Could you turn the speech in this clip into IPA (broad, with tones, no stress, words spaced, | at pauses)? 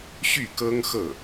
ɕy˥˩kɤ˥ŋxɤ˥˩